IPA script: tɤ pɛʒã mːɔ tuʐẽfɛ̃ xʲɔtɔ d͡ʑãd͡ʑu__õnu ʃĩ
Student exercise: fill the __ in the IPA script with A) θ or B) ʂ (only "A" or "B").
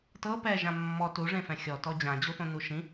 A